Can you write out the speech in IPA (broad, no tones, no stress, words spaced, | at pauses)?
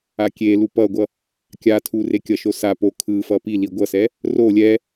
akʲelu pʌɡʷʌ | kʲa tʰurekʲʌʃo sa po kʰɯfʌ pi liɡʷʌsɛ | ro lʲɛ